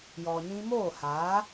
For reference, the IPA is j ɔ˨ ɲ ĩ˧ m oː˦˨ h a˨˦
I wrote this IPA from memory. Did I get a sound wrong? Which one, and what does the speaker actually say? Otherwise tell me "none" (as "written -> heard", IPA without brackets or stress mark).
none